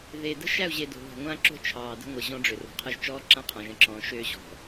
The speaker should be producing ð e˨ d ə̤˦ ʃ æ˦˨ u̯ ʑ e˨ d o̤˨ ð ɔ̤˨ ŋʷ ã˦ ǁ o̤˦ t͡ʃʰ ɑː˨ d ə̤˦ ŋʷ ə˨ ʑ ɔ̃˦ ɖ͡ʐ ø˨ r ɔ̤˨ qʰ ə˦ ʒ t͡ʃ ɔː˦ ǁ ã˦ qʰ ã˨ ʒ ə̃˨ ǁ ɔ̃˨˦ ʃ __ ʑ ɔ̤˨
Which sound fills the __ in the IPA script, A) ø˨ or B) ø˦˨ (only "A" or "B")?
B